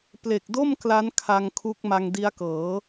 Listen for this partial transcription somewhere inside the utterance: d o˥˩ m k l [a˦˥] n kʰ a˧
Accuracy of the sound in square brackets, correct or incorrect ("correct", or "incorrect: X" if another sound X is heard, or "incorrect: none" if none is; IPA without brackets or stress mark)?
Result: correct